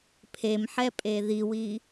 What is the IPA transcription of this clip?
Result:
pʰ e m ħ ɛ pʼ e ð i w i

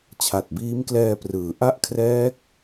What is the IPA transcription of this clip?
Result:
t͡ɕʰ a˨˩ t̚ b iː˦˥ m k l ɛː˧ p r ɯː˩˦ ʔ a˥˩ ʔ kʰ r ɛː˦˥ k̚

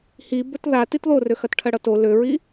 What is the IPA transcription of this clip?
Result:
h i b ɵ t ð a t i t ð o r ø x ɐ t ʈʰ ɐ ɽ ʌ t o l ø ɹ i

